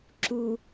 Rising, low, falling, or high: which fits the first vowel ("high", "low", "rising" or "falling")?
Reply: low